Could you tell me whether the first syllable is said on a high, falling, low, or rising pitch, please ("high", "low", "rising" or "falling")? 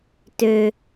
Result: low